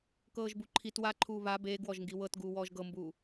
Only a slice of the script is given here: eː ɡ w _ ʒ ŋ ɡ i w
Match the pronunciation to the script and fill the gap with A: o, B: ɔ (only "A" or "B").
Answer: B